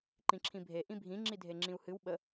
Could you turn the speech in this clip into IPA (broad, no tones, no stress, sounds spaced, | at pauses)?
ǃ ĩ ǁʰ ĩ bʱ e ʔ ĩ bʱ ĩ ŋ͡ǁ i dʱ e ŋ͡ǁ ĩ u̯ h ɨ w ɓ ə